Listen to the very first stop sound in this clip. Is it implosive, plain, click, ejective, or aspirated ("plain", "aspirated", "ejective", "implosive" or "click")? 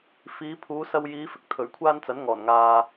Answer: aspirated